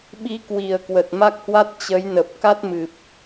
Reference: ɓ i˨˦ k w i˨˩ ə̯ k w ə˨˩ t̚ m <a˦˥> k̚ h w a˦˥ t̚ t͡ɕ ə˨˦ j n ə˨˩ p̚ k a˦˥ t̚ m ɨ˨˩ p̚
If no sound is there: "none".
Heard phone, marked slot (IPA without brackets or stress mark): a˦˥